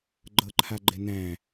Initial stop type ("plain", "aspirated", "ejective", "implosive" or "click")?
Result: click